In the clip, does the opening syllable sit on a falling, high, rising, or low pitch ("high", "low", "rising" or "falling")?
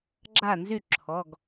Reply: falling